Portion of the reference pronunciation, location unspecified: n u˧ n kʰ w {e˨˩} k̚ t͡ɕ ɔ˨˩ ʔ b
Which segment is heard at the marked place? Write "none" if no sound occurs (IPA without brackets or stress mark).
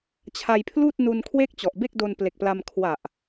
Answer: e˥˩